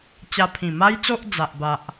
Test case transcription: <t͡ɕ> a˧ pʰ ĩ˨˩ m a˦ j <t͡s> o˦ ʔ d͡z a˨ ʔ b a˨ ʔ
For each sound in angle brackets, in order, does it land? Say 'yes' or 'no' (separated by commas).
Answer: yes, yes